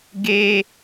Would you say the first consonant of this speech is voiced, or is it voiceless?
voiced